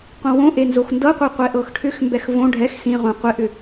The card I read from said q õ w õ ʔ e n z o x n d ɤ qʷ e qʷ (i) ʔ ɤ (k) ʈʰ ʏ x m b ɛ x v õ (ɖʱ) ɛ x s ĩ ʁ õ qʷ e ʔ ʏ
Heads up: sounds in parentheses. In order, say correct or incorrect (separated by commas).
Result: incorrect, incorrect, correct